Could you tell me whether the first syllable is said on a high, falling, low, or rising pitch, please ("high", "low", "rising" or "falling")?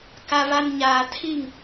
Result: low